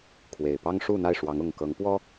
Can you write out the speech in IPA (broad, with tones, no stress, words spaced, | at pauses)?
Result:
kʰwe˨˩ɪ̯pɑ˦ŋ ʂu˥˨n̪a˥˨ɪ̯ʂwɑ˨˦ŋ ʊ˨˩ŋ kɤ˨˦ŋpwɔ˦